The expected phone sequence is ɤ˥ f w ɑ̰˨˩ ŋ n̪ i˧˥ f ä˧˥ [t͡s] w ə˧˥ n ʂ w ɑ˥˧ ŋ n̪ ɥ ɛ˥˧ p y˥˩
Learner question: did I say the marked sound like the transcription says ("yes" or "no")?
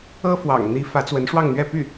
yes